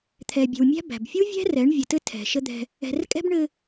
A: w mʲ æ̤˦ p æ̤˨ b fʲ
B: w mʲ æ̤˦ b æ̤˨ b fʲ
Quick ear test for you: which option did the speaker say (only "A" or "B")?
B